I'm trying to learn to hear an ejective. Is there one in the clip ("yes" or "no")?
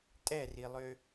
yes